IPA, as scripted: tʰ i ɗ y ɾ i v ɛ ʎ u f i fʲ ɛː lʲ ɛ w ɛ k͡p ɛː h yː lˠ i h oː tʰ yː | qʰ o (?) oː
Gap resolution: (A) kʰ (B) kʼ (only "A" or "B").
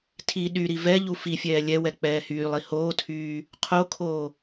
A